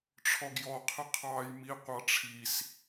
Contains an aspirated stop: yes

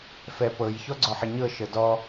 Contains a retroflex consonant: no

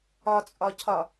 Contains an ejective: yes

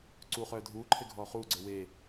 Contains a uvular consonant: yes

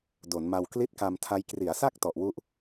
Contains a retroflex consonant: no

